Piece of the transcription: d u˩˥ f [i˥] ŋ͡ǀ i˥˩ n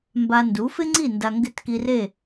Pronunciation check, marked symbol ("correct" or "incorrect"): incorrect